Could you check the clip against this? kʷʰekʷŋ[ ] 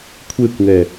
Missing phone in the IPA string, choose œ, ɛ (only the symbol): ɛ